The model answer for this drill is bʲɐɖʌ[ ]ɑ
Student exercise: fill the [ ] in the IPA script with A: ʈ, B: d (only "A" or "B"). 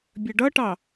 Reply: A